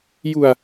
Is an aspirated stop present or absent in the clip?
absent